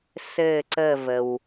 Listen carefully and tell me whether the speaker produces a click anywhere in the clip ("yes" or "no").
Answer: yes